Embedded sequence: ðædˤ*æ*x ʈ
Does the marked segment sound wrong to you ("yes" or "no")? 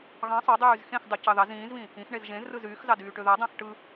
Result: yes